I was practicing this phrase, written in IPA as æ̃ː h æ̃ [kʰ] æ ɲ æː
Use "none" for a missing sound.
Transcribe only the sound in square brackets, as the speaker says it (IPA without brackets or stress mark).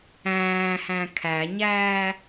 kʰ